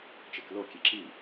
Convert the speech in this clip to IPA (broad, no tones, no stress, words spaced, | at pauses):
t͡ʃeklo kʲeǁi